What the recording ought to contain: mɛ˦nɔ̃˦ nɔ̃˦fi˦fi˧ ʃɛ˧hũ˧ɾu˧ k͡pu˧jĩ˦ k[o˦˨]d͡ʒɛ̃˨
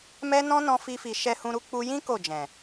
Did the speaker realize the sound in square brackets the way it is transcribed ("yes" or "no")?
yes